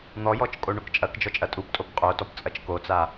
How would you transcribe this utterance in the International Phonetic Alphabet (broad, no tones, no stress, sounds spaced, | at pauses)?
n̪ ɔ j ɔ t͡ʃ kʼ o ɳ o k t͡ʃʼ ɐ k d͡ʒ ɔ t͡ʃʼ ɐ tʼ u p tʼ o p qʼ o t ɔ p t͡sʼ ɐ t͡ʃ k o t͡s a